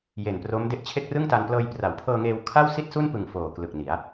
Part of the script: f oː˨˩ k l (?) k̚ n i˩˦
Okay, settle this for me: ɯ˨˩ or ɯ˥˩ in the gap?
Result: ɯ˨˩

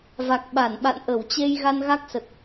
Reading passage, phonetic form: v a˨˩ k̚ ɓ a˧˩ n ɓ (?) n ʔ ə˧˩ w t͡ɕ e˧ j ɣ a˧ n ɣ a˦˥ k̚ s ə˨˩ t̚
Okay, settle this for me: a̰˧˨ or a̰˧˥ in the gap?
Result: a̰˧˨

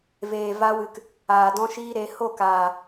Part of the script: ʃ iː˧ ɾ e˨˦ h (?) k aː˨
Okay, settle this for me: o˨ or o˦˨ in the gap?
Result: o˦˨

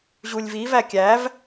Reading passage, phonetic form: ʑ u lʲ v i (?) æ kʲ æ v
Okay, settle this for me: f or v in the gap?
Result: v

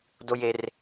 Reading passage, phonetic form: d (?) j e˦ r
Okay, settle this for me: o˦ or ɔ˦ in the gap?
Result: o˦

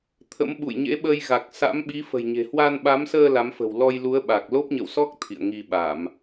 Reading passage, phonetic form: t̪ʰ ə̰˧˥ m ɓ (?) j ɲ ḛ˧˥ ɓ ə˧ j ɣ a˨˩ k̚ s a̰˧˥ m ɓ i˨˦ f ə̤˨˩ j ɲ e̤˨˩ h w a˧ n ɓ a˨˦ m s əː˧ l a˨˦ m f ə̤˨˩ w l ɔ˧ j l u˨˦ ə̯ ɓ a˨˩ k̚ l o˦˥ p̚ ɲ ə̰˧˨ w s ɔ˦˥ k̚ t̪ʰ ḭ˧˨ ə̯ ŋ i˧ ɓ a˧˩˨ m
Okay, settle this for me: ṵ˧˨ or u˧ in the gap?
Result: ṵ˧˨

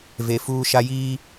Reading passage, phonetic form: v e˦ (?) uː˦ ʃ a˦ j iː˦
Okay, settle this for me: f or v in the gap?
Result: f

